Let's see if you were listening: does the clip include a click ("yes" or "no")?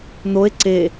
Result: yes